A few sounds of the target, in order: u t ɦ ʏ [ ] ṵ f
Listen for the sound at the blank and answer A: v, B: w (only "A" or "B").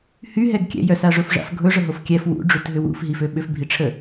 B